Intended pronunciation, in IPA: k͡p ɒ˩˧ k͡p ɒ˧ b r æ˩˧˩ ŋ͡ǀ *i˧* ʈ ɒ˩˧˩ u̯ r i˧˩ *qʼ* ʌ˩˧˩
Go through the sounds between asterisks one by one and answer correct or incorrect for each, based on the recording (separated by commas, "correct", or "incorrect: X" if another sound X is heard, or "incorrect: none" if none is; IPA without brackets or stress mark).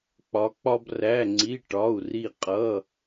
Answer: incorrect: i˩˧˩, correct